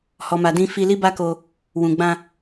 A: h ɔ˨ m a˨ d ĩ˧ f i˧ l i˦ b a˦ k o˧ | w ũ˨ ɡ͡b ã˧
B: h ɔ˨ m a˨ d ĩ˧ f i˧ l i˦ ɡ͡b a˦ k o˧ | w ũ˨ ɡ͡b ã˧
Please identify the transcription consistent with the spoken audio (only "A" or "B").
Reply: A